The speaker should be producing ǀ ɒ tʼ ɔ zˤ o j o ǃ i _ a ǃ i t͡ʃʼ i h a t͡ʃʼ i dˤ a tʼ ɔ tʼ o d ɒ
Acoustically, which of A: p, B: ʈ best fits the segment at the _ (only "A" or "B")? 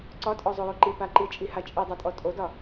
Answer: A